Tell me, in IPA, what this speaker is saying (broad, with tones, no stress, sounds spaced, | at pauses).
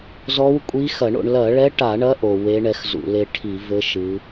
z ɔ˧˥ w kʷʼ i˧˥ x ɐ˧˩˧ ɳ o̰˧ ɳ l ɐ˧˩˧ ɭ ɛ˧˥ ʈ a˧˩˧ ɳ ɐ˧˥ ʔ o˧ w e˧˥ ɳ ɛ˧˥ x z ṵ˧˩˧ l e˧ ʈʰ i˧˩˧ v ɘ˧˥ ʃ ɨ˧˥